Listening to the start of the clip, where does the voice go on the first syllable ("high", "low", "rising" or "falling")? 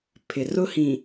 low